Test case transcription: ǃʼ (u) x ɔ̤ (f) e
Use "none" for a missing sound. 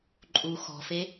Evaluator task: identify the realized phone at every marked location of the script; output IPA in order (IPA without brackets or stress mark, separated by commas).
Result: u, f